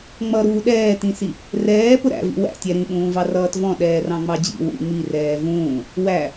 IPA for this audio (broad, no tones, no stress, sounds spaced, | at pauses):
ŋ͡m ʌ ɾ uː ɗ ɛː t ĩ s i | r ɛː p ʊ ɾ æ̰ v ḭ w æ̰ tʲ ɛ ɾ ĩ ɓ ũː v ɑ r ʌː t v ɔ̃ ɗ ɛː r ɑ̃ ŋ͡m ɑ d͡ʑ ḭ w ṵ ŋ͡m i r ɛː v ũː | w æ